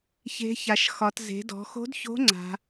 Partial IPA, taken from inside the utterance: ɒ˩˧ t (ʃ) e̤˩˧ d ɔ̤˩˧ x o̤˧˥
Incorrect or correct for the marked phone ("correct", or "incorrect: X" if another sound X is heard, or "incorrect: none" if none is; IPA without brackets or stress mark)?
incorrect: z